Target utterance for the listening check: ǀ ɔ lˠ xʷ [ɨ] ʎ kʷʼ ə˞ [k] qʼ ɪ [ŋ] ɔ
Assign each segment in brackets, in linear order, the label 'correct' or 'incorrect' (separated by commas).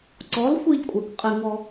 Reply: incorrect, correct, correct